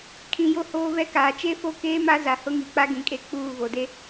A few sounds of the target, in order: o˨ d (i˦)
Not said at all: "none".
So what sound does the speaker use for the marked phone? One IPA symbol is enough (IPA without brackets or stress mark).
e˦